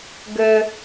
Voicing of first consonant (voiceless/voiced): voiced